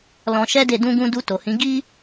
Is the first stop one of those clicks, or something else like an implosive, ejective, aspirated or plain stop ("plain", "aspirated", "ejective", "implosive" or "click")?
plain